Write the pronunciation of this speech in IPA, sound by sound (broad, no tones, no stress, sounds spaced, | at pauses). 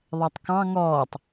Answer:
ðˤ ɛ tˤ k ɑ̃ ŋ ɔː tˤ